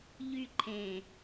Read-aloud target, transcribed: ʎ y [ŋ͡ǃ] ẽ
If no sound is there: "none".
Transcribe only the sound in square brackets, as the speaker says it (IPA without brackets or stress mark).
ǃʰ